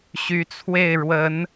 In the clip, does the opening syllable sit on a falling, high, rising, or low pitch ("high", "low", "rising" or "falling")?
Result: rising